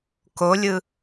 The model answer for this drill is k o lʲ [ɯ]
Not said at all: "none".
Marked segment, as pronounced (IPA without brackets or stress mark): ɯ